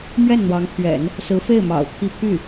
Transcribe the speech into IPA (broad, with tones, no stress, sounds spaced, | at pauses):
m ɥ ɛ˥˩ n n̪ w ɑ˧˥ ŋ pʰ ɥ ɛ̰˨˩˦ n | s ɹ̩˧˥ f e˥˩ ɪ̯ m ɑ̰˨˩ ʊ̯ t̪ʰ i˥˧ pʰ y˥˩